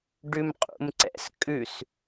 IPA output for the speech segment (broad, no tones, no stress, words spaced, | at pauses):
ɖʉmqʼṵmǀɛ̰s kʼʉs